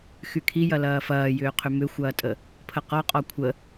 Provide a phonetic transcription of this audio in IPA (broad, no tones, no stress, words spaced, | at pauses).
xykʰijɐ lɐːfɐːjʏːqʰʏ mʏxʷɐːtʼə | pʰəqɔqʼɔ kʷʰə